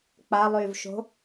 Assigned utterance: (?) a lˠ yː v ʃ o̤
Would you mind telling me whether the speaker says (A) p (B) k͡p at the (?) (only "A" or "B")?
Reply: B